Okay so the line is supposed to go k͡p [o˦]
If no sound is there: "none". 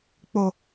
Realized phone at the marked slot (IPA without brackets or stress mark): o˨